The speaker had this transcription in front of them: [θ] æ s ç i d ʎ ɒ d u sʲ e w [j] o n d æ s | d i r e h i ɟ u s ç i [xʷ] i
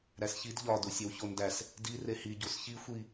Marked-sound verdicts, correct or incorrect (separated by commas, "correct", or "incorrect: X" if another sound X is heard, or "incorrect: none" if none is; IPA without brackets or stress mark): incorrect: ɾ, incorrect: ç, correct